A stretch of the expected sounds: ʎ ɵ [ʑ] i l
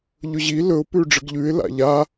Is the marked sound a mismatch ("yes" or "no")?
no